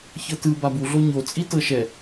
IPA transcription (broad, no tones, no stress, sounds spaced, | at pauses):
ç ɤ t ɯ b a b u ɮ o ɲ o t͡sʼ i t ɤ ʃ ɛ